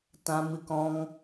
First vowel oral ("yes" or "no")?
no